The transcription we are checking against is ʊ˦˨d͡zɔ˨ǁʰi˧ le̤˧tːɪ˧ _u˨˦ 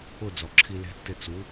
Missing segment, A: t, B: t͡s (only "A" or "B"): B